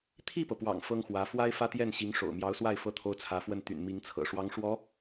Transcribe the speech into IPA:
t̪ʰ i˥˩ p ɤ˩ p w ɑ̰˨˩ ŋ f ɤ˥ ŋ x w ä˧˥ f w a˥ ɪ̯ f ä˥ t̪ j ɛ˥˩ n ɕ i˧˥ ŋ ʂ o̰˨˩ ʊ̯ m j ɑ˧˥ ʊ̯ s w a˥˩ ɪ̯ f ɤ˥ t̪ʰ o˥ ʊ̯ t͡sʰ ä˧˥ f w ə˥˩ n t̪ y̰˨˩ n m i˧˥ ŋ t͡sʰ ɤ̰˨˩ ʂ w ɑ˧˥ ŋ ʂ w ɔ˧˥

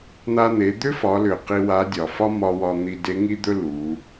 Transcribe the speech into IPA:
n̪ a˧ n̪ e˩˧ d̪ ʏ˥ f ɒ˩˧ l ʏ˩ q i˧ w a˧˥ dʲ ɒ˩ f ɒ˥ m ɒ˧ w ɒ˧ n̪ i˧ d e˧˥ ŋ i˥ d̪ ɵ˥ l u˩˧

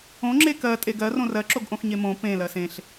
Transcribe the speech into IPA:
õ ŋ͡ǁ e k ɜ tʼ e ɡ ɜ r õ r ɜ ǁ o ɡ ʔ õ x ɲ e m õ p ẽ l ɜ s ẽ ɬ

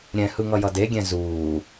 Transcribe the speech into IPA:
ɾʲ ɛ̃ h ɯ ŋ ʌ j ʌ d e ɡʲ ɛ̃ z uː

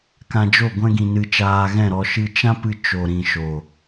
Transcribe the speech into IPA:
k ã˧ d͡ʒ o˦˨ ɡʷ ɛ̃˦ ɡ ĩ˧ n ɨ˧ t͡ʃ aː˧ ɣ ɛ̃˦˨ ɾ ɔ˧ ʃ ɨ˧ t͡ʃ ã˦ p ɨ˧ t͡ʃ o˨ ɾ ĩ˨ ʃ o˨

